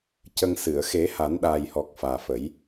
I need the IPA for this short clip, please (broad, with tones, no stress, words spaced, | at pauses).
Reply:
cə˧ŋsɨ˨˩˨ə̯ xe˨˩˦ha˨˩˦nɗaː˨˩jhɔ˨˩k̚ faː˨˩fə˨˩˦j